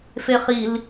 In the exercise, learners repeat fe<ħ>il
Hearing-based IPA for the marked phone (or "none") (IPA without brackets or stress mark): χ